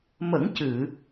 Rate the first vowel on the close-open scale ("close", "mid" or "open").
mid